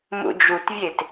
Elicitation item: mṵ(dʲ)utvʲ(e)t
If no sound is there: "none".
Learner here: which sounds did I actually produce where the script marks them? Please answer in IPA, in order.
d͡ʒ, e

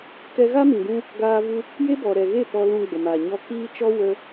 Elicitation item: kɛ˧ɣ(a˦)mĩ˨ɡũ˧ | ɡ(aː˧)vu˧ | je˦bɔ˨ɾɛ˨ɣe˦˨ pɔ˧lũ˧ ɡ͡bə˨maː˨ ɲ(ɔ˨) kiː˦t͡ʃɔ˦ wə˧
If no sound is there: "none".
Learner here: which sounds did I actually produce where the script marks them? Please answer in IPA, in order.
a˦, aː˧, ɔ˧

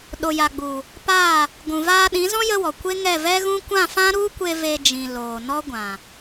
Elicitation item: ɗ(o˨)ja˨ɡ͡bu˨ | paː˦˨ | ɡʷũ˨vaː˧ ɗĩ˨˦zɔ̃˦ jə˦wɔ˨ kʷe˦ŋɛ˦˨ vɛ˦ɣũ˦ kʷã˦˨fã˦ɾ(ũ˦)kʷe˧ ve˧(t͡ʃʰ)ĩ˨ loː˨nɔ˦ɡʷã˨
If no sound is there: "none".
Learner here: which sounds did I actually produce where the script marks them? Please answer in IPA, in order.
o˨, u˦, d͡ʒ

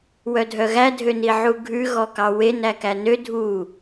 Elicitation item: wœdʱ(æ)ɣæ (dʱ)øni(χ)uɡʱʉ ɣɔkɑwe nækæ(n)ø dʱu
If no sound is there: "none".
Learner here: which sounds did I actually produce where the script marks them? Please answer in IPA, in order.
œ, dʱ, ʕ, n

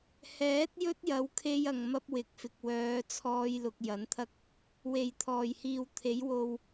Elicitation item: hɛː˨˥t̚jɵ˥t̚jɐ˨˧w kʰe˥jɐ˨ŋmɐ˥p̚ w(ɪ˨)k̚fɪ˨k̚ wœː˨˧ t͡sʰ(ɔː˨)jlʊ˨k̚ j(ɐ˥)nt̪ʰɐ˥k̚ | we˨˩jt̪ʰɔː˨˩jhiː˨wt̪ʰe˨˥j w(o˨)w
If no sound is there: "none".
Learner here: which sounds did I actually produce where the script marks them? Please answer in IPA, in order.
ɪ˨, ɔː˧, ɐ˨˥, o˨

